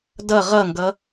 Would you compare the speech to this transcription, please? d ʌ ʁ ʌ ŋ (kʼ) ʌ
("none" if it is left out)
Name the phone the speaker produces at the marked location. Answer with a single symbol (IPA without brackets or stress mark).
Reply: ɡ